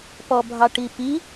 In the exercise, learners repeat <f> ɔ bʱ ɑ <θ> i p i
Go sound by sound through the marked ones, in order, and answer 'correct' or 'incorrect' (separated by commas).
incorrect, incorrect